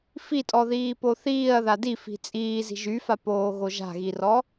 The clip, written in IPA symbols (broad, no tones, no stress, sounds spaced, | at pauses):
f i tʼ ɔ ð iː p o θ iː ɐ̯ ð a d i f i̤ t͡sʼ iː z i̤ ʒ y f a p oː ɣ o ʒ a̤ ɣ i r ɔ